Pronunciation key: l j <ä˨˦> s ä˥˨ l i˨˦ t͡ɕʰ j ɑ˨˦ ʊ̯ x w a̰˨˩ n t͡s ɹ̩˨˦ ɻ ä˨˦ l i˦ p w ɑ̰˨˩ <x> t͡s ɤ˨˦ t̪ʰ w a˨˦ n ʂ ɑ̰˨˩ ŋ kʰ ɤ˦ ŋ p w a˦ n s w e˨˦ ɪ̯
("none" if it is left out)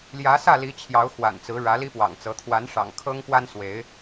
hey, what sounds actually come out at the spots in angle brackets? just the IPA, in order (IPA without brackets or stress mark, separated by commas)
ä˨˦, ŋ